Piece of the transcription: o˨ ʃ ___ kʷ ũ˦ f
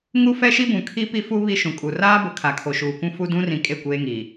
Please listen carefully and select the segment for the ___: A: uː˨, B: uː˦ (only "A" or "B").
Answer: A